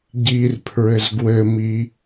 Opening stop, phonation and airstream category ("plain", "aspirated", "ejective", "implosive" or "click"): plain